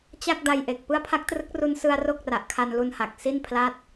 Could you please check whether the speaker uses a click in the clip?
no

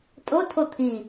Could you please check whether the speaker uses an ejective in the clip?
yes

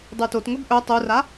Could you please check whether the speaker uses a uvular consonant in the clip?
no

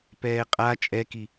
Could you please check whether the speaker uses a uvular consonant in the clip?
yes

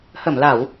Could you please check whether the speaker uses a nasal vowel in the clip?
no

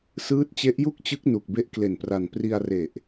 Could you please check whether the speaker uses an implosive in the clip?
no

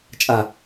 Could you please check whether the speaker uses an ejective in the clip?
yes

